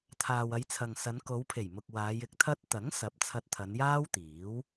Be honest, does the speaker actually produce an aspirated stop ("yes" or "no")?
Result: yes